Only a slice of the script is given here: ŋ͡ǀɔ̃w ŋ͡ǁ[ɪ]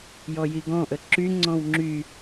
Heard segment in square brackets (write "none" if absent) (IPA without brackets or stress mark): y